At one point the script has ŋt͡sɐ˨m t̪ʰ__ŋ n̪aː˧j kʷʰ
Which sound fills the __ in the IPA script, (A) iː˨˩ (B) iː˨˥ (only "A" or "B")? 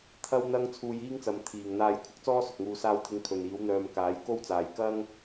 A